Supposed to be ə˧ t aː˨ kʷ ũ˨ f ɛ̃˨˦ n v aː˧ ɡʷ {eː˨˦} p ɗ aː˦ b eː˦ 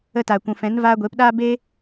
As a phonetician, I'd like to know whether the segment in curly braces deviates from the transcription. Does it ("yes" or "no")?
no